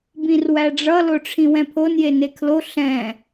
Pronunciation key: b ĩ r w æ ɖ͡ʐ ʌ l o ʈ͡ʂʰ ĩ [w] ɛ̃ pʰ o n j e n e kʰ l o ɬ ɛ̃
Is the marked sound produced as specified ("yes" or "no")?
yes